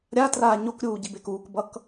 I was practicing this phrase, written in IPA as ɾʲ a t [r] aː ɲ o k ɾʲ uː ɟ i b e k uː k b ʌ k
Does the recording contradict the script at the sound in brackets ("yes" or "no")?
no